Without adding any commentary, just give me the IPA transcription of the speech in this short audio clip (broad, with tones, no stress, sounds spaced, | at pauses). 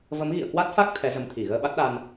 v ə˨˦ m ɣ ḭ˧˨ ə̯ k w a˦˥ t̚ f a˦˥ k̚ t̪ʰ ɛ˨˦ z ə˨˦ m t̪ʰ i˧˩ ɣ əː˧ ɓ a˦˥ t̚ ɗ a˧ n